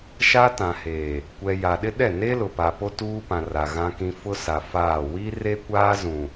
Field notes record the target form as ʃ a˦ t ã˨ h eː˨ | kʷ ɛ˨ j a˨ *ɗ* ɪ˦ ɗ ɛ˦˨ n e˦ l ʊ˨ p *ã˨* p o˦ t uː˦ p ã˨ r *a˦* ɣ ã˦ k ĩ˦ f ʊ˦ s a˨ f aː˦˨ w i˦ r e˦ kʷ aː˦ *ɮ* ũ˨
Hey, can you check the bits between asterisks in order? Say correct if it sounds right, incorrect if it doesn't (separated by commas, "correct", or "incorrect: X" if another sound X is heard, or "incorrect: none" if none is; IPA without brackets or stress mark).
correct, incorrect: a˨, incorrect: a˨, incorrect: z